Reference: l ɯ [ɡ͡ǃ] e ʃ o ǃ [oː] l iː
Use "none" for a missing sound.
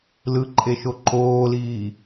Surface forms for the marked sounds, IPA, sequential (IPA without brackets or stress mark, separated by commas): ǃʼ, oː